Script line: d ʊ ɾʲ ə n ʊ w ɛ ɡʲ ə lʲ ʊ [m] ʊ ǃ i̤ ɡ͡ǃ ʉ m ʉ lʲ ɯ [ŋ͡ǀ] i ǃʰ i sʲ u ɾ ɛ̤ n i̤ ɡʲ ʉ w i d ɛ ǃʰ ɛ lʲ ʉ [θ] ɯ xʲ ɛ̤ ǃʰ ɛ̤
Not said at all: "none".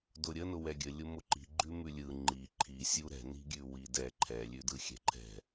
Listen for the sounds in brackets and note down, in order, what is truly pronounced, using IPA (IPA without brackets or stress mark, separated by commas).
m, ŋ͡ǃ, d